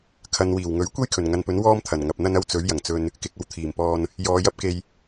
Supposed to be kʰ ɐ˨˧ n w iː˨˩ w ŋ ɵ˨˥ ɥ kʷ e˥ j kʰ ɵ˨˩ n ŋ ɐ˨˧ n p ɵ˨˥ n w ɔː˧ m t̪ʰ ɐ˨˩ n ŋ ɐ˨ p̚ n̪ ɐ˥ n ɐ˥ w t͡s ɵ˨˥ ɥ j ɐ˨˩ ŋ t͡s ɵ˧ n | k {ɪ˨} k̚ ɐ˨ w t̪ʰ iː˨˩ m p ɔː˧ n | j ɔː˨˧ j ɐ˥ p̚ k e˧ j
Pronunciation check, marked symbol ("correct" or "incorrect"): correct